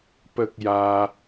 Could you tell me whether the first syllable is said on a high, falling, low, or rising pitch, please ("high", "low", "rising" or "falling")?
high